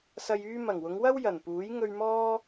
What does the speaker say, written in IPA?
sɐ˨jyː˧ mɐ˨˩ŋwʊ˨˧ŋwɐ˥w jɐ˨˩npuː˨˥j ŋɵ˧ɥmɔː˥

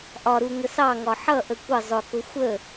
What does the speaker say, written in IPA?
ʔɒɾu ŋəsɑŋɒ ħʌʔə kʷə zˤʊkʊ xʷə

